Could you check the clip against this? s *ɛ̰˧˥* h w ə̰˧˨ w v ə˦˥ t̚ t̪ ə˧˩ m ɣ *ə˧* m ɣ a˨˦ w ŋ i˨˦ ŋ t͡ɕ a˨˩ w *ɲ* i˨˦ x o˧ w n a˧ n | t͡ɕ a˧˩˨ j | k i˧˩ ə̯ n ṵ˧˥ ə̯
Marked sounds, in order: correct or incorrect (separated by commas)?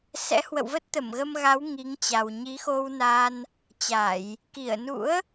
correct, correct, correct